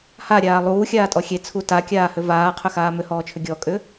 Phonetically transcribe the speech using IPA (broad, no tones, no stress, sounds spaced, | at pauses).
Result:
h a ɾʲ aː lˠ uː xʲ aː tʼ ɔ xʲ e t͡sʰ u t a kʲ aː h ʏ v aː qʰ ʏ x aː m ʏ h ɔː t͡ʃʰ ʏ ɡʲ ɔ kʼ ʏ